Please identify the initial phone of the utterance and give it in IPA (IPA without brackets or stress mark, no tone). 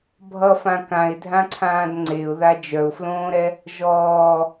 bʱ